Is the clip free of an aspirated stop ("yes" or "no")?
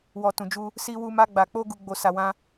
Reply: yes